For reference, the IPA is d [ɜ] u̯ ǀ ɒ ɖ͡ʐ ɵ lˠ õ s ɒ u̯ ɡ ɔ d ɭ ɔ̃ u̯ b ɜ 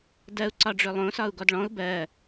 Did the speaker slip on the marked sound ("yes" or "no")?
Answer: no